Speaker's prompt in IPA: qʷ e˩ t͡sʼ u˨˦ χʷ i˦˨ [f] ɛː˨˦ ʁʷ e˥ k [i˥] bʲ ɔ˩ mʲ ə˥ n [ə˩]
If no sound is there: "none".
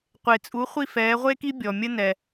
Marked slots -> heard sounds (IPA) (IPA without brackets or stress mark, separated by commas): f, i˥, ɛ˩